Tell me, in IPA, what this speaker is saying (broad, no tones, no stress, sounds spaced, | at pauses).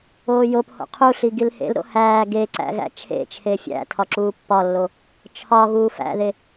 oː j o p h o̰ qʰ u ɬ i ɡ i l h ḛ l ɾ o̰ h æː ɡ e ǀ æ̰ ɣ æ̰ t͡ʃʰ ḛ t͡ʃʰ e fʲ æ̰ tʰ ɒ ǁ uː pː ɒ lː o | t͡ʃʰ ɒ ɣ uː f æ̰ ð e